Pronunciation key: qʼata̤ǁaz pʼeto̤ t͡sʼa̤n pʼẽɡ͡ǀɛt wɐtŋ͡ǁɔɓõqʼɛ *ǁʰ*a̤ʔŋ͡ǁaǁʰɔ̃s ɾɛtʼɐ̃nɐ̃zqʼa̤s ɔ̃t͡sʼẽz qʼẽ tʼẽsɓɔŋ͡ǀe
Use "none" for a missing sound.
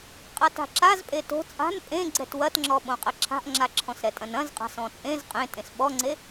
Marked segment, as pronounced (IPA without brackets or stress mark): ǁʰ